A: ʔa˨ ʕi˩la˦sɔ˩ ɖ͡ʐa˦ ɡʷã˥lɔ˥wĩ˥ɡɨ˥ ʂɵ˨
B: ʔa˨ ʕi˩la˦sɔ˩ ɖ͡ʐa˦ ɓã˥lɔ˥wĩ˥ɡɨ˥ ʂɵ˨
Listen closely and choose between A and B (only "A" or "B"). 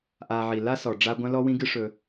A